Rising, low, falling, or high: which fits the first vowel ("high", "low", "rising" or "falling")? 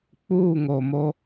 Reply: falling